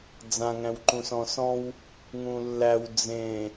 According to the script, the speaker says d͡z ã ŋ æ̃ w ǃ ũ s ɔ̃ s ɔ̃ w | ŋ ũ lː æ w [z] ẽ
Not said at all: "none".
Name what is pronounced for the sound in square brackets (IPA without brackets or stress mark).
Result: d͡z